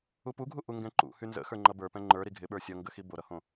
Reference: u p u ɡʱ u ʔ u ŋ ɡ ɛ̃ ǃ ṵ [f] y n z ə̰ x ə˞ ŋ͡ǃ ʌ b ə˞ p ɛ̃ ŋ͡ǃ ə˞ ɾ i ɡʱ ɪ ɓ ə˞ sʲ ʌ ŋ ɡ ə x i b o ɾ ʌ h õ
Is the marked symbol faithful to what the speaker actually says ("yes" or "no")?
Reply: no